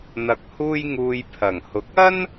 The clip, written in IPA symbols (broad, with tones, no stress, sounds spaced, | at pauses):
n̪ ɐ˧ k̚ h uː˥ j ŋ uː˧ j pʰ ɐ˨˩ ŋ h ʊ˨˥ k̚ ɐ˥ n